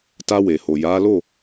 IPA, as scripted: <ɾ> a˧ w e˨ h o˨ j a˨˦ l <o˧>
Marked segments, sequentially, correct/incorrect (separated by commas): incorrect, incorrect